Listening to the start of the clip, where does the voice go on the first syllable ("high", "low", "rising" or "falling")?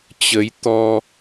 rising